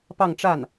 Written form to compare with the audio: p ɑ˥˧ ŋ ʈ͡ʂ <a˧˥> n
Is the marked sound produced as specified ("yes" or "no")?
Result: no